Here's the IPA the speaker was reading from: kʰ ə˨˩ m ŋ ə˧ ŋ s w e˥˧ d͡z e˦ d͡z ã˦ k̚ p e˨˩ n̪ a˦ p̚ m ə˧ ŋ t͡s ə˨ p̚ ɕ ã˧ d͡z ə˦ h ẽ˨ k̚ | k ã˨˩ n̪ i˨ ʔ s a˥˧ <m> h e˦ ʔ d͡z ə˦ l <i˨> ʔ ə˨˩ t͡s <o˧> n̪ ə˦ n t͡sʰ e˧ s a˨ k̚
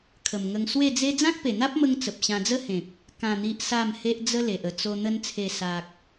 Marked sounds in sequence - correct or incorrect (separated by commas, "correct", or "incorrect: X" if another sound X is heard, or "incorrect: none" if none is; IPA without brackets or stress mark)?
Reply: correct, incorrect: e˨, correct